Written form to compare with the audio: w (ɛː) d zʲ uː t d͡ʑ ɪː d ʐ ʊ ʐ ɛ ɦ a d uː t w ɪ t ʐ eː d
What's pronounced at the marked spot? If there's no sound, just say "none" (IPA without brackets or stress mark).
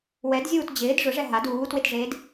ɛ